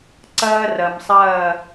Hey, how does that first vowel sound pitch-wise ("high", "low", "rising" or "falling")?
high